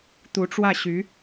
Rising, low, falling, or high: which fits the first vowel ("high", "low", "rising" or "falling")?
rising